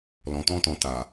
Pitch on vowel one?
low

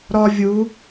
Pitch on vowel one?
high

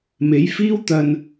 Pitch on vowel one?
rising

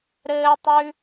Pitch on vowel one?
high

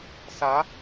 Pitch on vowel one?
rising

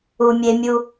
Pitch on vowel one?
low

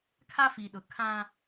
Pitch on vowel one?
high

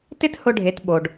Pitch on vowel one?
high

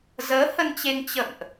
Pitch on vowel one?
rising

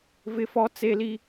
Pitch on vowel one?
high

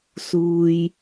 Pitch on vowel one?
low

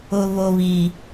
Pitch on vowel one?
low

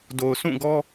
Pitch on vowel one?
low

